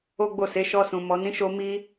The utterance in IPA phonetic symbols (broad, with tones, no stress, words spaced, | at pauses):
o˦ɡ͡bo˦˨se˨˦ ʃɔ˧sũ˨ mɔ˨nĩ˨˦ʃo˧ mi˦